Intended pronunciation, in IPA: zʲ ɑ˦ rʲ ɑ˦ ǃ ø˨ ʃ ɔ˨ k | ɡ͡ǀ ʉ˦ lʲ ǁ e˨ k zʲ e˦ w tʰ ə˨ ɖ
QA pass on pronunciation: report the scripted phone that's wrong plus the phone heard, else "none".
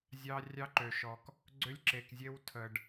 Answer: ʉ˦ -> ø˦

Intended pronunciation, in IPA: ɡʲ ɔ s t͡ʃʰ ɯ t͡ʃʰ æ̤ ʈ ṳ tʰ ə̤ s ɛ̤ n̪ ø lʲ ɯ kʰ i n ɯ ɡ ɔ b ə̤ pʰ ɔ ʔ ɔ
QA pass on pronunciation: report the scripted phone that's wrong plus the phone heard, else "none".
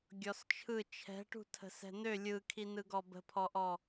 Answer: æ̤ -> ɛ̤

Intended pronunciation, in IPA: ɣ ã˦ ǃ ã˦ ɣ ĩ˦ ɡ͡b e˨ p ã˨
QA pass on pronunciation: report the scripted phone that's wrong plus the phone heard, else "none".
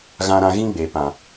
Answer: ǃ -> ɾ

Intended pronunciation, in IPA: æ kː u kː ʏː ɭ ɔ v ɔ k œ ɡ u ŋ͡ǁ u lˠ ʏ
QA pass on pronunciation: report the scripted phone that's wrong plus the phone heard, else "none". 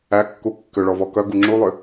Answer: ʏː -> ʏ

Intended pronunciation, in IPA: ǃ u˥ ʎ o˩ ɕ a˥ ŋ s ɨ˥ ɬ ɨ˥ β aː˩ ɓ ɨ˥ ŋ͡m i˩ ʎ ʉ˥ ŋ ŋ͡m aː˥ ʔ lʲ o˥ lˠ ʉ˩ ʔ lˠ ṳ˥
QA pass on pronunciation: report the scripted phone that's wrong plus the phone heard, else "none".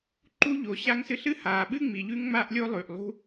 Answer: β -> h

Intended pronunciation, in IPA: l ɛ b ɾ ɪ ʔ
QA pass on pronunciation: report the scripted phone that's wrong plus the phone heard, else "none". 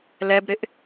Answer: none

